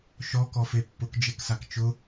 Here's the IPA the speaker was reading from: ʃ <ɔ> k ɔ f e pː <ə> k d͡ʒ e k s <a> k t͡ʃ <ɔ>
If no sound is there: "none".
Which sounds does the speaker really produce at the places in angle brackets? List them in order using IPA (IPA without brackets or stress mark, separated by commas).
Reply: ɔ, ʊ, a, ʊ